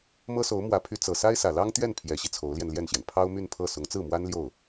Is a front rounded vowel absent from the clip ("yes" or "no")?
no